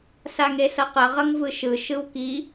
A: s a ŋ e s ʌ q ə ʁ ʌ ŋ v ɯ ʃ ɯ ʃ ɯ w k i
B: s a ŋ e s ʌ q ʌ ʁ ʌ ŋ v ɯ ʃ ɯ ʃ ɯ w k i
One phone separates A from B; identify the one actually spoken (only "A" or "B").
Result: B